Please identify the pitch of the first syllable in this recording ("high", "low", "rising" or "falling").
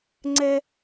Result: high